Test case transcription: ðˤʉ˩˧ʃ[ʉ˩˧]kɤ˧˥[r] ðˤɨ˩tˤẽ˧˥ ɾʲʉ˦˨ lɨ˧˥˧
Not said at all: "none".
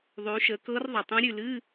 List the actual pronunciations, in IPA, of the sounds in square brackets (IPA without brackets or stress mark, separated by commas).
ə˩˧, r